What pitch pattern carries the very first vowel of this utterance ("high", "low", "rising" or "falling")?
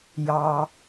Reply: low